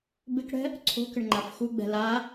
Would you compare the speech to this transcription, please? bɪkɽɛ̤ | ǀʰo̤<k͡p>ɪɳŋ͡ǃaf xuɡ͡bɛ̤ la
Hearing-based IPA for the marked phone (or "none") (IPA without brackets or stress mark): k